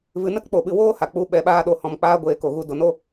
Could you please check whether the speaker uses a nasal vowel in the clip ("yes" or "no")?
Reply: yes